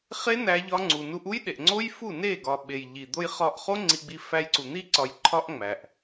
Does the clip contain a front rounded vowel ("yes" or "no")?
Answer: no